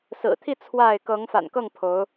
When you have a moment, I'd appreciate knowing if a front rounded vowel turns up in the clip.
no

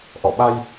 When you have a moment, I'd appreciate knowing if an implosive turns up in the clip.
yes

